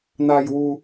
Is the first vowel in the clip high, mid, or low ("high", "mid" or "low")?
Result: low